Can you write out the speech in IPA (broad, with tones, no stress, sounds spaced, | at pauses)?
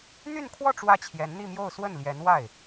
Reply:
n̪ y˥˧ n kʰ w ɔ˥˧ ʈ͡ʂ w ä˥˩ t͡ɕʰ j ɛ˧˥ n n̪ i˥˧ m j o˥˧ ʊ̯ s w ə˥˩ n l j ɛ˧˥ n w a˥˩ ɪ̯